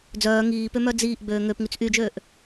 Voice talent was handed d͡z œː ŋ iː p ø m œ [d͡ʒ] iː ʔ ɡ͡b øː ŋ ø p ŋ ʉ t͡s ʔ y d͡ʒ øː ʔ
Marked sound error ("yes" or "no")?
yes